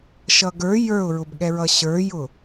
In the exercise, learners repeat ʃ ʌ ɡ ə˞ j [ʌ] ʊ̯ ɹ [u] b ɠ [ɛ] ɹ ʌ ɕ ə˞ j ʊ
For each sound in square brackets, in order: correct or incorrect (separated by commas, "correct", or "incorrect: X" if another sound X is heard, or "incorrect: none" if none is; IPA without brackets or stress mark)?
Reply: incorrect: ə˞, incorrect: ʊ, correct